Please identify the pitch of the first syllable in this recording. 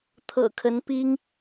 low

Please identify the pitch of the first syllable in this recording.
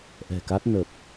low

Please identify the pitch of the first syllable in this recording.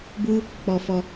high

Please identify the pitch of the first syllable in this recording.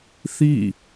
falling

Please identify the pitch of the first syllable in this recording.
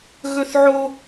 high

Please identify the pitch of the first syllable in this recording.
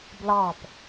falling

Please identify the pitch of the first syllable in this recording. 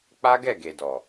high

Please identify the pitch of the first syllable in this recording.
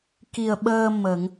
low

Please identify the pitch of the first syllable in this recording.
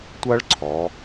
high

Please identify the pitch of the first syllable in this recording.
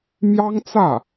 high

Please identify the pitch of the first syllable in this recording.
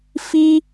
high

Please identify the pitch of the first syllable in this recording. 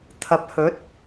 rising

